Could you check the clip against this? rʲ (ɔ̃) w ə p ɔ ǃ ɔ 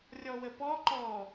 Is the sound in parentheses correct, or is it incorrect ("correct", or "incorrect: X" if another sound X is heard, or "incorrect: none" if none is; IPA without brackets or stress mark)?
incorrect: ɔ